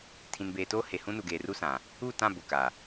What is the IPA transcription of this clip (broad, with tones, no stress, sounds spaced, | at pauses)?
tʰ ĩ˨ n b eː˨ t oː˦ h e˨ h ũ˦ n u˨ ɡ eː˨ r u˦ s ã˨ | u˦˨ t ã˦˨ b ʊ˨ k a˨